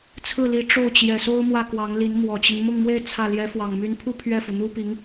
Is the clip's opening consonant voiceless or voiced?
voiceless